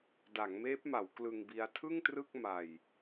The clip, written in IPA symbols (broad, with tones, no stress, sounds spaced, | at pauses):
d a˩˦ ŋ m eː˦˥ p̚ m a˩˦ w k l ɯ˧ ŋ b i˦˥ a̯ tʰ ɯ˥˩ ŋ t r ɯ˥˩ k̚ m a˧ j